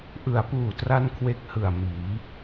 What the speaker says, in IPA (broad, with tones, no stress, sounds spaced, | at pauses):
ʔ ɯ˩˦ a̯ p uː˨˩ t r a˥˩ n kʰ w e˦˥ k̚ h ɯ˨˩ a̯ m iː˩˦